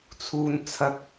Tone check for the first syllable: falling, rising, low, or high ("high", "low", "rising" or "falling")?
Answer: high